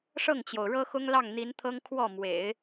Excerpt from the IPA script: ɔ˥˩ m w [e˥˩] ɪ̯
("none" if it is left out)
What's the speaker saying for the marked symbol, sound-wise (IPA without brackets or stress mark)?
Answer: ḛ˨˩˦